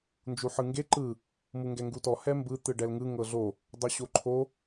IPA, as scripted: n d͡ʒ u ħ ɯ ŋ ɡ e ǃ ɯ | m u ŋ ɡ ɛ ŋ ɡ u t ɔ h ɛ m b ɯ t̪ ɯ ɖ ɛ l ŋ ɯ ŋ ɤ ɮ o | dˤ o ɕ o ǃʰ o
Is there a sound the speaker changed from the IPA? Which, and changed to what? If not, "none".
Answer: none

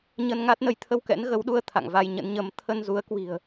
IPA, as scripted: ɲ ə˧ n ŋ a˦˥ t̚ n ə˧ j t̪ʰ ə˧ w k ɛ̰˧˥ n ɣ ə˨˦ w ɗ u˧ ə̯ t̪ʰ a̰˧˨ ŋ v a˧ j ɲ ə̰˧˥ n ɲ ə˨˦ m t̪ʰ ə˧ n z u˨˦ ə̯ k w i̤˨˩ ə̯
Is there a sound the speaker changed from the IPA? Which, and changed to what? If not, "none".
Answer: none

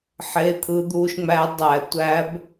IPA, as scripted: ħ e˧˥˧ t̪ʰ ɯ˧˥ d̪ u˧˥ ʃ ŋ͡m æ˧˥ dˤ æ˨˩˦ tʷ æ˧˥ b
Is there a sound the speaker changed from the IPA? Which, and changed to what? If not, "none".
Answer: none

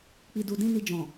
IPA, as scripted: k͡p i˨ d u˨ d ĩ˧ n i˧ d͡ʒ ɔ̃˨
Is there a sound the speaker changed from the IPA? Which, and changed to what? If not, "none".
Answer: none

